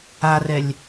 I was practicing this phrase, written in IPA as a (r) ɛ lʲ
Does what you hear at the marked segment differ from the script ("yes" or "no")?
no